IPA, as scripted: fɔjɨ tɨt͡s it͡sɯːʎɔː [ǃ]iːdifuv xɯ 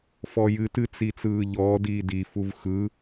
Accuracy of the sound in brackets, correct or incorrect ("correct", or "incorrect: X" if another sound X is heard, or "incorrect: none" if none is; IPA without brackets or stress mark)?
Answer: incorrect: d